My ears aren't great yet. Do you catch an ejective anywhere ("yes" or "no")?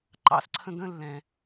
no